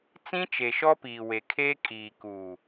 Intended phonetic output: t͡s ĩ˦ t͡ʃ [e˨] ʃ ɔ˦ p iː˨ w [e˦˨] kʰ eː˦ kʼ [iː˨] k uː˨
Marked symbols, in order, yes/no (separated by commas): yes, no, yes